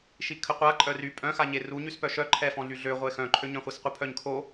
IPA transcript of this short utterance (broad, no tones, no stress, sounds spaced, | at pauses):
ʃ i kʰ ə qʷ a ǃʼ œ r y pʼ œ̃ x a ɲ e r u ɲ y s p œ ʃ œ ǃʰ ɛ f ɔ̃ ɮ y ɮ ø ʁʷ e x œ̃ ǃʰ ø ɲ œ̃ χʷ i s qʷ ə pʰ œ ɲ kʰ o